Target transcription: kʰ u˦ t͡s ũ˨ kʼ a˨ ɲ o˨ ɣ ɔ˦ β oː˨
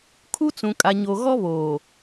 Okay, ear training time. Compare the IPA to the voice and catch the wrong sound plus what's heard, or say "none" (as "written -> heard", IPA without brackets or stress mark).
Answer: none